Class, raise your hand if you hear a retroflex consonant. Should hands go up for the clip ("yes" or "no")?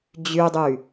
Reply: no